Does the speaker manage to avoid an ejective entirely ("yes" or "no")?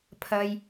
yes